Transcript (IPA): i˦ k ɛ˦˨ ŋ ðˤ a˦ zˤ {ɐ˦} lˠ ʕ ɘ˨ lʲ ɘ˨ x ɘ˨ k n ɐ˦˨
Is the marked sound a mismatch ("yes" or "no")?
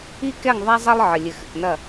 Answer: no